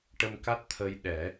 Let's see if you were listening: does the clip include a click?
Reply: no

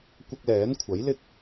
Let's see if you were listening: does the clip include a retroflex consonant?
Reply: no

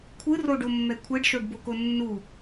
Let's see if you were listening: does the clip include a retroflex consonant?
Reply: yes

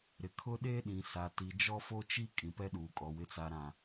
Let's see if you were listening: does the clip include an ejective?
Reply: yes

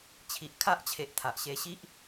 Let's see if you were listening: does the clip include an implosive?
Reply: no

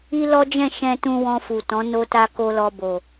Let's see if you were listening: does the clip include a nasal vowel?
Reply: yes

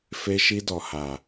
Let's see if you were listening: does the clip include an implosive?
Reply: no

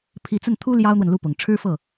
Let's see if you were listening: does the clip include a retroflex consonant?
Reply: yes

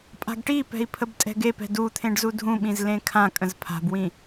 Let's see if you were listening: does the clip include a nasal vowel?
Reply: yes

